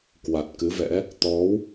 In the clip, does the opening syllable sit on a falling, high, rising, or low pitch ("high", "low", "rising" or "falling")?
low